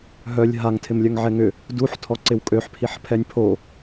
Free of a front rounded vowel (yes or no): no